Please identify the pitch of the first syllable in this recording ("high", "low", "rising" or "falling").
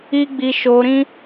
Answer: high